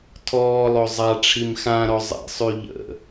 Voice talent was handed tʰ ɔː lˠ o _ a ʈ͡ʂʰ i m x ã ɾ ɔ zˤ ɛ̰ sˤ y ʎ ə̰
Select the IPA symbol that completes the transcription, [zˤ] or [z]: zˤ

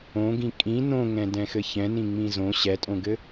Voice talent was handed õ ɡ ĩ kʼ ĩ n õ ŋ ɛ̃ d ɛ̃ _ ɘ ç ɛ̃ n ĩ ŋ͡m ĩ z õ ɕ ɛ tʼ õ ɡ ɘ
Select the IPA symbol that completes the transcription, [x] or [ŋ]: x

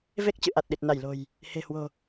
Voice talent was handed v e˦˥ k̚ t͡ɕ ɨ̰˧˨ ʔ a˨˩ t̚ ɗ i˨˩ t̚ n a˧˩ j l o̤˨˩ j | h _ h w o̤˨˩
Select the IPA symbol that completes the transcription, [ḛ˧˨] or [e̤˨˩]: e̤˨˩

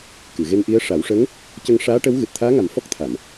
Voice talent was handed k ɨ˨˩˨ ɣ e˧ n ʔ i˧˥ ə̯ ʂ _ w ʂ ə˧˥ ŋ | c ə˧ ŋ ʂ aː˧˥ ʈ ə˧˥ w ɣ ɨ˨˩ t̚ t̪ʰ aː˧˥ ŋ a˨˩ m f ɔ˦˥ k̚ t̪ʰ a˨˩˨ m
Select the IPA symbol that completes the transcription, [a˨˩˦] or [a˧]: a˨˩˦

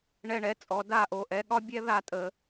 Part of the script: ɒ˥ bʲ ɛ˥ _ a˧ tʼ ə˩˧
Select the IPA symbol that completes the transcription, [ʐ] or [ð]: ð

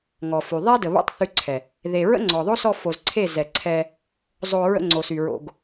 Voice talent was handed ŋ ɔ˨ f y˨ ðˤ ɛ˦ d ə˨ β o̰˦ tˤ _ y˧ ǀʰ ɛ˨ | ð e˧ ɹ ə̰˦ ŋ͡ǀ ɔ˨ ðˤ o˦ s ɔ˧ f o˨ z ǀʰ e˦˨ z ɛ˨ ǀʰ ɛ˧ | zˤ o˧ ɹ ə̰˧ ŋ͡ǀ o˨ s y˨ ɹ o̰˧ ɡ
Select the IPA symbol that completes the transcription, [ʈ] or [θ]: θ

